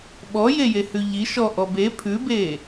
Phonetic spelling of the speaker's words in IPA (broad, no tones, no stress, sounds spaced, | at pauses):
ɓ ɔ j e j e h ʉ ʎ i ʃ ɔ ʔ ɔ b e pʰ ʉ b e